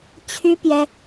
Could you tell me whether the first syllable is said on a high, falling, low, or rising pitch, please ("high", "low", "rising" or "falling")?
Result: high